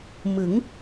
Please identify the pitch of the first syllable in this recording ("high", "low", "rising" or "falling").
rising